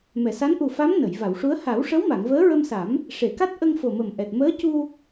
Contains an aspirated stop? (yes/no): no